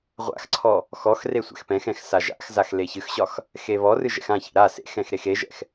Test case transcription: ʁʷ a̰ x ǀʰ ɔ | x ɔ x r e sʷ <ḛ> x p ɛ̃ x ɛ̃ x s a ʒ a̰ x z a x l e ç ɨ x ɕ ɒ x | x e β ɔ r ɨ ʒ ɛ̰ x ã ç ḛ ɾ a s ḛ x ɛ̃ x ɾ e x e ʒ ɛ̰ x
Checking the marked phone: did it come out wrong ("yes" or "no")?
yes